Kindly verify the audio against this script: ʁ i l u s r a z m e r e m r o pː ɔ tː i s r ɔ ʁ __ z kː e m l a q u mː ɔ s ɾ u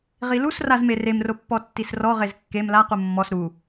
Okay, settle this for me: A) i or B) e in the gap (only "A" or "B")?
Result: B